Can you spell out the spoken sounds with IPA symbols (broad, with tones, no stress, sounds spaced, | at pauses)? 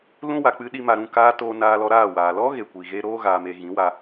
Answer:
l ũ˧ w a˨ k͡p ɨ˧ ɗ i˦ m a˧ ɾ ũ˦˨ k aː˧ t oː˧ n aː˧ l ɔ˧ ɾ aː˦˨ w aː˨ l ɔ˦ ɣ e˨ kʷ i˨ ɣ e˧ ɾ oː˧ ɣ aː˨ m e˨ ɣ ĩ˨˦ w a˧